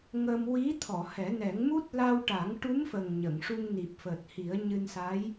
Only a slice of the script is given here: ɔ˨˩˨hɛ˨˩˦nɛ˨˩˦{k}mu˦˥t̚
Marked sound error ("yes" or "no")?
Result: yes